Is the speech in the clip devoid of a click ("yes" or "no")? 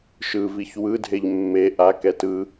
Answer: yes